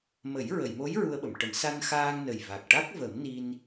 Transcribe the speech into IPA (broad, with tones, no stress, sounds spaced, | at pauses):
m ə˨˩˦ j ɹ ə˨˩˨ j m o˧˥ j ɹ u˧ ə̯ ɓ ə˨˩˨ m ʈ ə˨˩˦ m s a˧ n x aː˧ ŋ n ə˨˩ j v a˨˩ k̚ ʈ a˦˥ k̚ v ə˨˩˦ m n i˧ n